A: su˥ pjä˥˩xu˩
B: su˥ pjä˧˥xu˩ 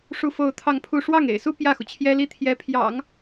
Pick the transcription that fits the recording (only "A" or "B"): A